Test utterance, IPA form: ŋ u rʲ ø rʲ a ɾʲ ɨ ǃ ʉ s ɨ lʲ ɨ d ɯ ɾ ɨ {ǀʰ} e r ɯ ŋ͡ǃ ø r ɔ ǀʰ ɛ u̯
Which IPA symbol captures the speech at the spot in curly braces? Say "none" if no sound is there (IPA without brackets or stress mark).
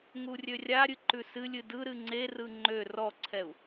ŋ͡ǀ